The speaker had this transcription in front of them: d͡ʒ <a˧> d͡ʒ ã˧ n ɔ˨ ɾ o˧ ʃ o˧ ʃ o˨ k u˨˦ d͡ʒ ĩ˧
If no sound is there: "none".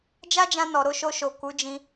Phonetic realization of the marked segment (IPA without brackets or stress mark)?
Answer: a˦